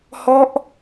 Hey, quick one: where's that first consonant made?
throat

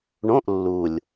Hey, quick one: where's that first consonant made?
retroflex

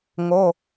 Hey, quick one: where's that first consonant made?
velum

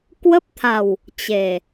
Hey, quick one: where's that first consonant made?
velum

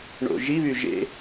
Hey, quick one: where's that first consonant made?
retroflex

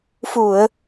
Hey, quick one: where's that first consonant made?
lips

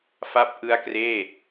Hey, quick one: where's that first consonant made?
lips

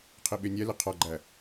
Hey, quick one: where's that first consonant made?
uvula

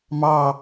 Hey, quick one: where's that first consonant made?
lips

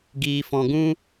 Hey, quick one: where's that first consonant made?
velum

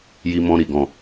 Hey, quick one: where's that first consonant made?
palate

